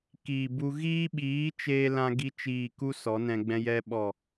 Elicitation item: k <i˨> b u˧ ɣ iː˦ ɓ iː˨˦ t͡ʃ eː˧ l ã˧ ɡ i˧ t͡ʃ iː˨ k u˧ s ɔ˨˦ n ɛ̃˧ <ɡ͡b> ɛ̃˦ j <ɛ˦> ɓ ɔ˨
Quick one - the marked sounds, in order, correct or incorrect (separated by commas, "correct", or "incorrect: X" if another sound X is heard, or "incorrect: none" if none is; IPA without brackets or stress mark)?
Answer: incorrect: iː˨, correct, correct